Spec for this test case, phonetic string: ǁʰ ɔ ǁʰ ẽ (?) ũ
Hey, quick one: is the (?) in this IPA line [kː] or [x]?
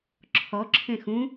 x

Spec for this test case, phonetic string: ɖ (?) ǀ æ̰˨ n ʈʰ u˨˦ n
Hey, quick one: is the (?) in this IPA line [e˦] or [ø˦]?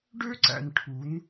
ø˦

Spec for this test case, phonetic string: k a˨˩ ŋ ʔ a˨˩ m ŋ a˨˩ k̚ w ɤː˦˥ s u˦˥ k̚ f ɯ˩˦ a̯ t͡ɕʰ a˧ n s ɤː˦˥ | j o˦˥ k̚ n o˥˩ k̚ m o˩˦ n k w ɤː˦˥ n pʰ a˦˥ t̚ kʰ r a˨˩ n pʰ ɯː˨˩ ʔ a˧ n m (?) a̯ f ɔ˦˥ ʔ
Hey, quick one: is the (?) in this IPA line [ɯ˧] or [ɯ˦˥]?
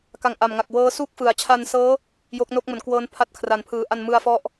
ɯ˧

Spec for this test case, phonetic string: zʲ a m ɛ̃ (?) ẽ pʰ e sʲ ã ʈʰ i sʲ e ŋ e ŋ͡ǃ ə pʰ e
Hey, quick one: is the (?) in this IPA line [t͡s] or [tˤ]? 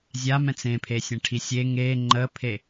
t͡s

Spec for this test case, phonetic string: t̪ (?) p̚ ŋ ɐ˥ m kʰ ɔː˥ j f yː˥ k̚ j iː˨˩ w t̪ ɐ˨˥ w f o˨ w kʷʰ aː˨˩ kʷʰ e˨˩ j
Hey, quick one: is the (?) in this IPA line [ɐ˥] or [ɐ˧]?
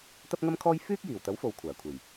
ɐ˥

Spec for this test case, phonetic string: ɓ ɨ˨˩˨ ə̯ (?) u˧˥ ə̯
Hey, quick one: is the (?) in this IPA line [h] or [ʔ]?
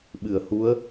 h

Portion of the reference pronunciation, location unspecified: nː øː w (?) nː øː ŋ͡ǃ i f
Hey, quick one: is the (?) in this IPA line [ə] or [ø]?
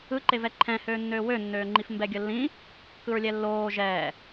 ø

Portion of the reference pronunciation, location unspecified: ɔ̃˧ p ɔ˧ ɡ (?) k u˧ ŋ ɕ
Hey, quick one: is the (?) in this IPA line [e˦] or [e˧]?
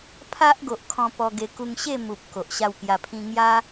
e˧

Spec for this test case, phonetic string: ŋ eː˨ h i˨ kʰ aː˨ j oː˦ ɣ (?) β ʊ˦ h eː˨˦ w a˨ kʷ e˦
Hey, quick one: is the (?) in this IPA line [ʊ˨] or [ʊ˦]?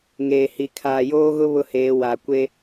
ʊ˦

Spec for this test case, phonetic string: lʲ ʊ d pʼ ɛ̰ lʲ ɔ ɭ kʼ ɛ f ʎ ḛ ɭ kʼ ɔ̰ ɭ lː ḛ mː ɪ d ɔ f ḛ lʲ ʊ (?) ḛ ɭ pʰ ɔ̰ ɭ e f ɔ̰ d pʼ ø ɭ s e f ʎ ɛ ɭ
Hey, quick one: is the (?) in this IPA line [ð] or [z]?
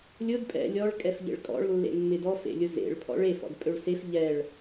z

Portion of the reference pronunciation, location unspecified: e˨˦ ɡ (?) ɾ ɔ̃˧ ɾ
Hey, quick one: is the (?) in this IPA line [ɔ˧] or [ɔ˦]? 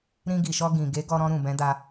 ɔ˧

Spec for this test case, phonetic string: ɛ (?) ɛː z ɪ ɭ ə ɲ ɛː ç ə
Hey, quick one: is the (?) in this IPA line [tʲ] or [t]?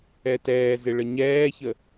t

